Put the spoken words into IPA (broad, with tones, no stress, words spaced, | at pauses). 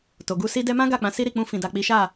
to˨ɡu˧si˦ dɛ˧mã˦ ɡa˦˨k͡pã˨˦ si˦ɾi˦˨k͡pũ˧ fĩ˨da˨k͡pi˨˦ʃa˦˨